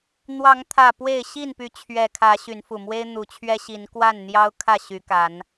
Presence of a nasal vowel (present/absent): absent